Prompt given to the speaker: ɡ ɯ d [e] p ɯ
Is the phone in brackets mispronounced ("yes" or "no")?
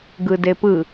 no